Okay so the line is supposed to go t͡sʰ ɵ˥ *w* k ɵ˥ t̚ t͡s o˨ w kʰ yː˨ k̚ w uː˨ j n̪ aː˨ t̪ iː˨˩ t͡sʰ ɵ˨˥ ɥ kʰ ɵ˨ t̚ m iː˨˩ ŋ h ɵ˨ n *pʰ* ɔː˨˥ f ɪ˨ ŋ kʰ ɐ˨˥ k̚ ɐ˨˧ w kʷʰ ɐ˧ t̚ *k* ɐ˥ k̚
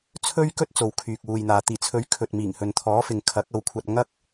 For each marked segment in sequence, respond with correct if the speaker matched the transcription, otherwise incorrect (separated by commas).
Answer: incorrect, incorrect, incorrect